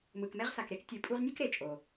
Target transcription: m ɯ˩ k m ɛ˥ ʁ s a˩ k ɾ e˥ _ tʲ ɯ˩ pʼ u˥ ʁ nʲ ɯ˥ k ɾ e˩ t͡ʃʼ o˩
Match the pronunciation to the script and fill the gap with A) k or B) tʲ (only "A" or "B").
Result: A